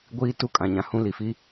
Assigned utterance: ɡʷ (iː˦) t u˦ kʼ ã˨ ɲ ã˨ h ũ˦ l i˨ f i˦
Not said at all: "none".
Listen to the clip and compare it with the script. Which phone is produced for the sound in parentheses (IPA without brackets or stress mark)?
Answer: iː˦